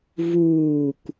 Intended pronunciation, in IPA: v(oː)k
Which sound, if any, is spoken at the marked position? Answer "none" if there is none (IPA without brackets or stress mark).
uː